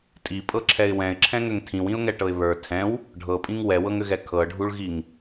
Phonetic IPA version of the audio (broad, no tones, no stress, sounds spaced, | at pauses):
tʼ i pʼ ɤ ǁʰ ɛ ɪ̯ w ɛ̃ ɪ̯ ǁʰ ɛ̃ ŋ ʏ ŋ tʰ ĩ w ĩ ʊ̯ ŋ ɛ ʈ ɤ ɪ̯ β ə˞ tʰ ɛ̃ w | ɖʱ ɤ pʼ ĩ ŋ w ɛ w ɤ ŋ ʏ ɣ ɛ kʰ ɤ ɖʱ u ɭ ɣ i ŋ